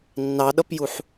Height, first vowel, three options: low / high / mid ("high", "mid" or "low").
low